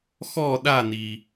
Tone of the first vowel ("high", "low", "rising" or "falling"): falling